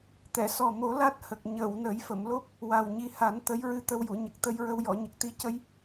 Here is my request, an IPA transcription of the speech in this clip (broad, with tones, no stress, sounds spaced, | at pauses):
t̪ ɛ˨˩˨ s ɔ˨˩ m o˨˩˦ l a˦˥ t̚ h ə˨˩ k̚ ɲ ə˨˩˨ w n ə˨˩˦ j f ə˨˩˨ m l o˦˥ p̚ | w a˨˩ w ɲ i˧˥ h a˨˩˦ n t̪ ə˧˥ j ɹ ɨ˧ t̪ ə˧ w j u˨˩˨ ɲ ə˨˩ k̚ t̪ ə˧ j ɹ ə˧ w j ɔ˨˩˨ ɲ ə˨˩ k̚ t̪ i˧˥ c ə˧ j